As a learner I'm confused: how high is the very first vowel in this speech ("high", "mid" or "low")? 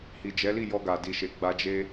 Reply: high